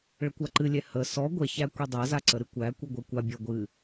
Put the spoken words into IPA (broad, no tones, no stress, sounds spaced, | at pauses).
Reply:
ɭ ə kʷ a ǃ ɨ lʲ ɛ h ə s ɔ ɡʷ ɛ ç æ kʷ i dˤ æ z a ǀ ə ɾ ɨ kʷ æ kʷ ɨ ɡʷ ɛ kʷ a bʲ ɔ ɡʷ ɨ